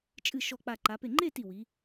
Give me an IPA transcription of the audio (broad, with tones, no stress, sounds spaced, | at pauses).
t͡ʃʼ ɨ˧˩ ʃ ɔ˧˩ k͡p a˧˩ ǃ a˩˧ p e˧˩ ŋ͡ǃ e˥˧ t i˧˩ w i˩˧